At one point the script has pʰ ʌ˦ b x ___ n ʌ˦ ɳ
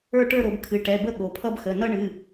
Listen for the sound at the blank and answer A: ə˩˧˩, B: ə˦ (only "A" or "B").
A